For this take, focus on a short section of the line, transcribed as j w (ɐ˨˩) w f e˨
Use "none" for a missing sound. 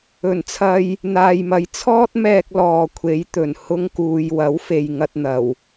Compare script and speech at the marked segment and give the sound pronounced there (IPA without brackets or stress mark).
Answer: ɐ˨˥